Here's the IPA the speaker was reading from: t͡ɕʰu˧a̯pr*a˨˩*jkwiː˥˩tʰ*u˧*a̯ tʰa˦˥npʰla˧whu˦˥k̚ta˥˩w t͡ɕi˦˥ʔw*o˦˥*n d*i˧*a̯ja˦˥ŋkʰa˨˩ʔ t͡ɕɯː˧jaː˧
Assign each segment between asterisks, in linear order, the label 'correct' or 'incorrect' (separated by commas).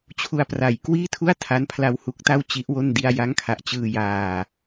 correct, incorrect, incorrect, correct